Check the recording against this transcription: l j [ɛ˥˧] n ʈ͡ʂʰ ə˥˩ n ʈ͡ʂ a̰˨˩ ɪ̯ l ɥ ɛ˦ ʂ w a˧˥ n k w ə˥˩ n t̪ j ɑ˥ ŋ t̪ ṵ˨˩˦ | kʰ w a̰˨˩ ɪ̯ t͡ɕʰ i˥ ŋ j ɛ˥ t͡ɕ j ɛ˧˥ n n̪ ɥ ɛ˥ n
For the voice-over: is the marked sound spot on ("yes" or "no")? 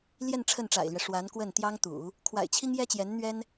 yes